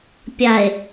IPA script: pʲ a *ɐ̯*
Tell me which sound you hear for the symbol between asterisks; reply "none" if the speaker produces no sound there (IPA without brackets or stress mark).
e̯